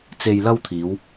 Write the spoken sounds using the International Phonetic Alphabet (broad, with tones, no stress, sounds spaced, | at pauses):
t͡s e˧ j l ɐ˥ w t̪ʰ iː˨˧ w